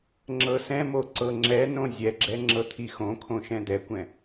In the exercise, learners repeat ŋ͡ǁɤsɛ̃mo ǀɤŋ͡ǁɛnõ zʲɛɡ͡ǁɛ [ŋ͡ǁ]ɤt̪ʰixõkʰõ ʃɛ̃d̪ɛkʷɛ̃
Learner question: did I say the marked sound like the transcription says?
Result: yes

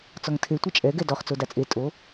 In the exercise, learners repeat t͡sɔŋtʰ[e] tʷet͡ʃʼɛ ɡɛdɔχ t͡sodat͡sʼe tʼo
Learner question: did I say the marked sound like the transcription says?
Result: yes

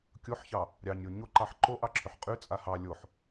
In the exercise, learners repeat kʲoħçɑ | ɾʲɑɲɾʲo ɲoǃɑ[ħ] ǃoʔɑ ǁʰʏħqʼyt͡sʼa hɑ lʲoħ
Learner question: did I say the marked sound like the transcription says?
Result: yes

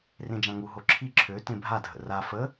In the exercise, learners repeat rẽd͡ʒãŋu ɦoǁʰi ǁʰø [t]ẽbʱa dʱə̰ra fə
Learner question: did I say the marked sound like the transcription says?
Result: yes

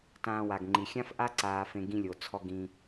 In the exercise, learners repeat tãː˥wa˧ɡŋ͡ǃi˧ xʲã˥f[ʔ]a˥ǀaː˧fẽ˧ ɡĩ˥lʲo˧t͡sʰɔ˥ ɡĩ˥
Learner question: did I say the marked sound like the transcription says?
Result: yes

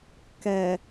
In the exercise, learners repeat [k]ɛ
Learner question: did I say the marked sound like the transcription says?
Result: yes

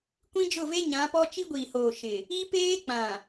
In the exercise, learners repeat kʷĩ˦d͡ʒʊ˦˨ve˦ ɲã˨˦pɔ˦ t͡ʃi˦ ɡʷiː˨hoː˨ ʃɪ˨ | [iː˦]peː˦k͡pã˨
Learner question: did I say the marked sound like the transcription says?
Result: no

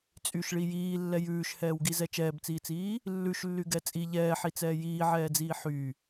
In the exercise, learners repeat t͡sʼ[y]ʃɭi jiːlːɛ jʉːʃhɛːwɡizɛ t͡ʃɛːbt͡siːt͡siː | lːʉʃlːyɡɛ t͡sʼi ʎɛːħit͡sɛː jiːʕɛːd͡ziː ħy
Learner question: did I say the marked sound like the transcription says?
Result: yes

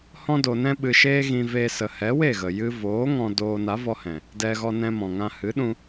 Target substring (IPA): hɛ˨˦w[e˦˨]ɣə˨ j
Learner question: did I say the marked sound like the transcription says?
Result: yes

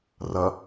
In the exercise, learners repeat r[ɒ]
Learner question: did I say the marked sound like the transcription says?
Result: no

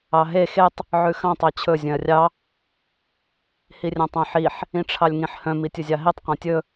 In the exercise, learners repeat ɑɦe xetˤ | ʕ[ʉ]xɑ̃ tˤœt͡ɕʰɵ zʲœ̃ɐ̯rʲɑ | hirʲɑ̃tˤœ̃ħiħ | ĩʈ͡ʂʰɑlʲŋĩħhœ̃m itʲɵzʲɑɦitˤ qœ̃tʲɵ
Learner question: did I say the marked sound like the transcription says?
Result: yes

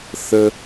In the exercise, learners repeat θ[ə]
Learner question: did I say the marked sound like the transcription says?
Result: yes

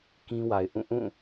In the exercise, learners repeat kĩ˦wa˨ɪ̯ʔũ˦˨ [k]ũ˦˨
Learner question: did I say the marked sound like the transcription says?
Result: no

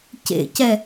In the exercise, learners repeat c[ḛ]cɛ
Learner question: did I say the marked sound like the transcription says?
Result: yes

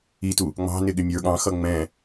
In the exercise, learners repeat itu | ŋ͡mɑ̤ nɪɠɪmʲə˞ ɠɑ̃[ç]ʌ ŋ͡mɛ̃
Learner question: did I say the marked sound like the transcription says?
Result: no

